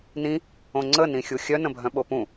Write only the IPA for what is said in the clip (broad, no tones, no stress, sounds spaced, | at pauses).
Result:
n ĩ | õ ŋ͡ǀ ə n ĩ xʲ u xʲ œ n ə̃ bʱ œ̃ ɓ o p ũ